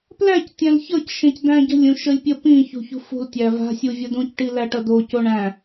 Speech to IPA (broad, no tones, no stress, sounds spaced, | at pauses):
p l æ c tʲ æ̃ l ç ʌ c ʃ ẽ c d æ̃ ɟ ə̤ lʲ ũ ʃ ə lʲ pʲ ə p ĩ ç ṳ ç ṳ f ṳ l tʲ æ v a̤ sʲ u vʲ ʌ d ũ c ʈ i l æ ʈ ʌ d o c o ɳ æ̃